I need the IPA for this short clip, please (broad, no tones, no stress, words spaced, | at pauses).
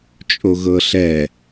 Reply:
t͡ʃʼoɣɤɬɛ